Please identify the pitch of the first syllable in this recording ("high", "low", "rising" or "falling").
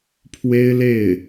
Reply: high